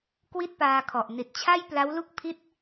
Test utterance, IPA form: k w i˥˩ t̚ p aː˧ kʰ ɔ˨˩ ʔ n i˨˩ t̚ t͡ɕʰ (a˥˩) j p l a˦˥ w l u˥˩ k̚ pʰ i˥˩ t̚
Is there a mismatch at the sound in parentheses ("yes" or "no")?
no